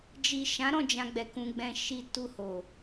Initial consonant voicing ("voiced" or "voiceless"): voiced